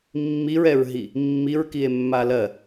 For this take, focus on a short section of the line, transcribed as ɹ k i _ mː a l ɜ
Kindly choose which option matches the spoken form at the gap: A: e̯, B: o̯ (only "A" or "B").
A